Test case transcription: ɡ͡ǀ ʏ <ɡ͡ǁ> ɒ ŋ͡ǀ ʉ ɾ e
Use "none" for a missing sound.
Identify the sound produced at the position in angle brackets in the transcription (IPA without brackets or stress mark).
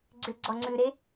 ɡ͡ǀ